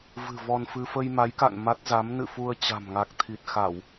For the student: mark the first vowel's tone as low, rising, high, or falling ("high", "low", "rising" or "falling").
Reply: low